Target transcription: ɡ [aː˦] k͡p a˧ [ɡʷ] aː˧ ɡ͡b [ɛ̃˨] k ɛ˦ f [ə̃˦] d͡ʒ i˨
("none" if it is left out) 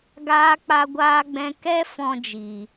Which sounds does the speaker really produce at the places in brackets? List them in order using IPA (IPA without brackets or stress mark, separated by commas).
aː˧, ɡʷ, ɛ̃˧, ɔ̃˦